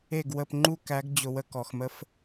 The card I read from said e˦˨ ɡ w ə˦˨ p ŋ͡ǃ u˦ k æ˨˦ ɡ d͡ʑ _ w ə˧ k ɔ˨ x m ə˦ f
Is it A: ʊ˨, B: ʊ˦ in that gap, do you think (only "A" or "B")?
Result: A